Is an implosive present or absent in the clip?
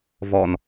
absent